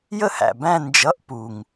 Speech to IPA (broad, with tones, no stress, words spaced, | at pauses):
jə˥˩hæ̰˨˩ bæ̃˥˧ nd͡ʒʌ˧˥˧ʔ pu˨˩ŋ